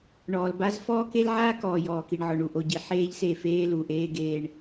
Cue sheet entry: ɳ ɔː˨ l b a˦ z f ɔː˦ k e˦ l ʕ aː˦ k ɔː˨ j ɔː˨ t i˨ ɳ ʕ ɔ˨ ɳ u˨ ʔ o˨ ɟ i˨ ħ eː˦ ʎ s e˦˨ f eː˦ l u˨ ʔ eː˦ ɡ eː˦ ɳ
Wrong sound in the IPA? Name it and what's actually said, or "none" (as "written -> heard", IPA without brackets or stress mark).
t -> k